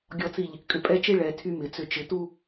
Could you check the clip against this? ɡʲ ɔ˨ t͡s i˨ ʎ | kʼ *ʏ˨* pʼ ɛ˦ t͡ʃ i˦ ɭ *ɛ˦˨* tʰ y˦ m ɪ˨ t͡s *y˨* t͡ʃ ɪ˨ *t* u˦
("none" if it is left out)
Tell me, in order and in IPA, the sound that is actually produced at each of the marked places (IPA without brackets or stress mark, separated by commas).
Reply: ʏ˨, ɛ˨, ʏ˨, t